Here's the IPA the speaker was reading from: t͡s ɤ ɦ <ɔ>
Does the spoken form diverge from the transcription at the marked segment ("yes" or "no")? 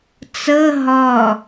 no